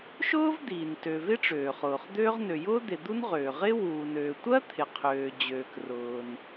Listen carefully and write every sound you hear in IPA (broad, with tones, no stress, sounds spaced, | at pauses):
ʃ ʊː˥ v d̪ iː˩ n t ø˩ v ɪ˥ ʈ͡ʂ øː˩ χ ʊː˩ χ d̪ øː˥ ʁ n ø˩ j ʊː˥ d̪ e˩ d̪ u˥ n ʁ øː˩ ʁ ɪː˥ w uː˩ n øː˩ tʷ ɜ˥ t̪ʰ ɪ˩ qʰ øː˩ d͡ʑ øː˩ k r ʊː˩ n